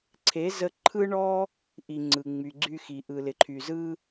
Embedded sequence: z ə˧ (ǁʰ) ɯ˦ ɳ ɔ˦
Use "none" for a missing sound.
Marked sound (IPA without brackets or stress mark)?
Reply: ǃʰ